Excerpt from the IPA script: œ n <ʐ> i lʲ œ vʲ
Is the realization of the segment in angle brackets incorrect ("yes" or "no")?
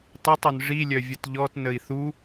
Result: no